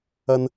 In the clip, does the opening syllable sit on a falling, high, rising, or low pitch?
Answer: low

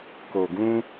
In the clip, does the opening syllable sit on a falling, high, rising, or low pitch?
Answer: low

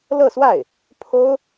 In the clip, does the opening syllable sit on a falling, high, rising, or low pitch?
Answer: falling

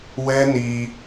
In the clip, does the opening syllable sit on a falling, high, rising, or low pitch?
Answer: high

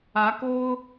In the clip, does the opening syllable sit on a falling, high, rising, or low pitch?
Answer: rising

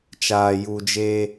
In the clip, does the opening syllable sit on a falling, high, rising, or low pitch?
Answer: low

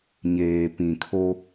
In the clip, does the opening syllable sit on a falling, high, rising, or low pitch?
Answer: low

